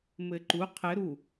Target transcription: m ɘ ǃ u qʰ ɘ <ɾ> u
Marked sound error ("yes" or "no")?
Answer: no